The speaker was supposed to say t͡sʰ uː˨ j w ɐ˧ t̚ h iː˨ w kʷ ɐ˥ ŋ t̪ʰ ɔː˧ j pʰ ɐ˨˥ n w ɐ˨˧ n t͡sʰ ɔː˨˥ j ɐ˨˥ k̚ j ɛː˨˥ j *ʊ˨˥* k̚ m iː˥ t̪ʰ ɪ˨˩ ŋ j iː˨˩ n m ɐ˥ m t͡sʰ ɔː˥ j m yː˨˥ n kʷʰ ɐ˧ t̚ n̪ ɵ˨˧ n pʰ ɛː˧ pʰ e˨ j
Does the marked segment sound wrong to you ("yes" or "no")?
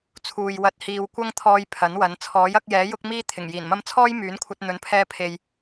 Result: yes